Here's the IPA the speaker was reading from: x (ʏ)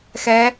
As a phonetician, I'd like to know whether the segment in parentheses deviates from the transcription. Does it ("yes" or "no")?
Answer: yes